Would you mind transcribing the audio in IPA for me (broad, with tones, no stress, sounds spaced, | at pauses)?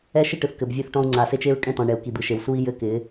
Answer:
ɛ˦ ʃ ɪ˦ ʈ ɯ˨ θ k ɘ˨ b vʲ ɘ˦ θ ʈ ɔ̃˦ u̯ ŋ͡ǀ a˨ s e˦ t͡ʃ e˦ ɹ kʼ ɛ̃˦ t ɔ̃˨ ɳ ɛ˨ u̯ k i˨ d̪ ɯ˨ ʃ e˨ w s u˦ i̯ j ɘ˦ k ɪ˨˦